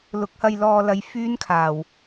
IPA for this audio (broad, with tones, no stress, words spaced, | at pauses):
lʊ˨˥k̚hɐ˧jlɔː˧lɐ˨˧j fyː˥nkʰaː˨˩w